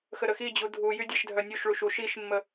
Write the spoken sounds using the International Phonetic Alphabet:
x ə ɾ ə x i d͡ʑ u dʱ u j y dʲ ɛ ʃ dʱ œ nʲ u ʃ ɭ u ʃ u ʃ i ʃ mː ə

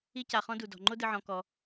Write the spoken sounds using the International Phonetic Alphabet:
i˥ c a˨ χ ɔ̃˥ d u˩ d ɔ̤˩ ŋ͡ǃ o˥ d ɯ˨ ʕ ɔ̃˨ k ɔ˩

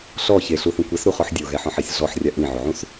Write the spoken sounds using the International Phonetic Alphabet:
ɬ ɔ ç e ɬ u θ ĩ kʷ i s ɾ u χ ɔ ħ dʲ o ɣ ɛ ħ ɔ̃ ħ i sʲ ɮ ɔ ħ rʲ a ʔ ĩ ʕ ʊ ʕ ũ s

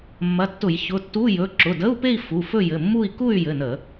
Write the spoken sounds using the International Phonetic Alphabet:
mː ɐ˩˧˩ tː ʊ˧˩˧ j ç ʊ˩˧˩ tː u˧˥˧ j ɵ˩˧˩ ǁ ʊ˩˧˩ d ə˧˥˧ u̯ p e˥˧ i̯ f u˩˧˩ f ɵ˥˧ j ɘ˩˧˩ mː u˥˧ i̯ k u˥˧ y̯ j ɘ˩˧˩ n ə˧˩˧

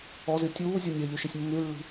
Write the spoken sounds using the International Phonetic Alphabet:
ɔ z i tʲ uː zʲ o nʲ ɛ ʎ y ʃ i sʲ mː y lː i̤

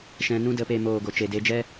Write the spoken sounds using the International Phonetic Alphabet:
ʃ ɛ̃˧ n ũ˦ d ə˨˦ p e˧ m oː˨ ɡ o˨ t͡ʃ e˨ d e˧ d͡ʒ ɛ˦

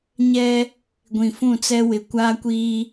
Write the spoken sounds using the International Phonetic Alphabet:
ɲ ɛ˦ | ɡʷ ĩ˨ f ũ˦˨ t͡s ɛ˦ w ɪ˨ kʷ aː˦ kʷ iː˦

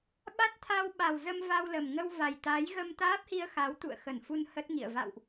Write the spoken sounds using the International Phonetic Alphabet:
ɓ a˦˥ t̚ t̪ʰ a˧ w ɓ a˨˩ w z ə˧ m v a˧ w l ə˨˩ m ŋ ə˧ w v a˨˩ j t̪ a˨˦ j ɣ ə˧ m t̪ aː˦˥ p̚ h i˧ ə̯ x a˨˦ w t̪ ṵ˧˨ ə̯ x ə˧˩ n f u˧ n h ə˦˥ t̚ ŋ ḭ˧˨ ə̯ v a̰˧˨ w ʔ

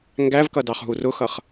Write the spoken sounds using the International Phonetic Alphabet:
ŋ ɡ æ v k ʌ d ɑ χ ɦ u r ʊ x ʌ χ

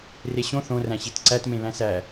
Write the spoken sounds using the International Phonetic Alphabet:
r e ɕ õ θ õ r æ̃ ɕ i t ǀ æ t m ẽ β æ̃ s æ

